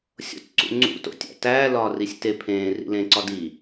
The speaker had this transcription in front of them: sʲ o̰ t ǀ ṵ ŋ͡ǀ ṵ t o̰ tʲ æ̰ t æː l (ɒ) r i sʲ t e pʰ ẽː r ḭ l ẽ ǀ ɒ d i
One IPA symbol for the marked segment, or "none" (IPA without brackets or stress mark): ɒː